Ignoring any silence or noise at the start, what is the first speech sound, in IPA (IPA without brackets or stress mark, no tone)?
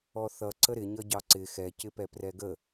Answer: ɔ